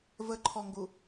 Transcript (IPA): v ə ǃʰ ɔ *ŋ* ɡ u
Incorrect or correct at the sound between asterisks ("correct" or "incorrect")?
correct